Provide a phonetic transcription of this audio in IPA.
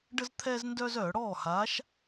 ɖ ə˦ z t̪ʰ ɛː˦ z n d œː˦ z œː˧˩˧ ɽ ɔː˥˩ h aː˨˥ ʃ

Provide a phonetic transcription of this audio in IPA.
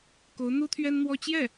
k o˧˥ ʊ̯ n̪ u˥ t̪ʰ ɥ ɛ˥ n n̪ w ɔ˥ t͡ɕ j ɛ˥˩

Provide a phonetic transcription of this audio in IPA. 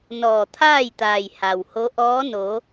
n ɔː˧˩ t̪ʰ aː˥˨ j t̪ aː˩ j h a˩ w h o˧˥ ʔ ɔː˧˥ n o˩˧

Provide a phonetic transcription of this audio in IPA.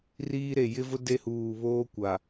r iː˦ ɾ e˨ j ɪ˦ v ʊ˦ d e˦ h uː˨ β oː˦ kʷ a˨

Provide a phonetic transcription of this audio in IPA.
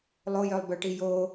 lˠ o j œ lˠ b œ ʈ i j o

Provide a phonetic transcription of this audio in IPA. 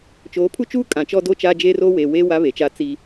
t͡ʃ oː˨˦ pʰ u˦ t͡ʃ uː˦ kʼ ã˨ t͡ʃ ɔ˦ d o˦ t͡ʃ aː˦ d͡ʒ e˦ r oː˦ w eː˨ w eː˦ w a˦ β e˨ t͡ʃ a˦ t͡s i˦

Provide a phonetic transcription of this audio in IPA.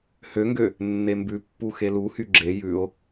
h ø ŋ ɡ ø | nː e m b ʉ pː u x e l u h y ɡ͡ǁ e j ʉ o̯

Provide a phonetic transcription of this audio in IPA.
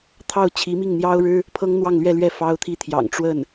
t̪ʰ ɑ˥˩ ʊ̯ t͡ɕʰ i˧˥ m i˥˩ ŋ n̪ j ɑ˥ ʊ̯ ɻ ɻ̩˥ | pʰ ɤ˥ ŋ n̪ w ɑ˥˧ ŋ l ɥ ɛ˥˧ l ɥ ɛ˥˩ f ɑ˥ ʊ̯ t̪ʰ i˥ t̪ʰ j ɑ̰˨˩ ŋ ʈ͡ʂ w ə˥˩ n

